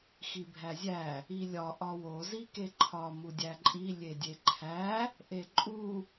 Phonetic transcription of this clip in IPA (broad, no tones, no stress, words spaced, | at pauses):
xibʱæzʲæ | ilʲɒ ʔɒwo zikeǃʰɒ mudʲæǃʼi lʲedʲeǃʰæ | ʔeǃʼu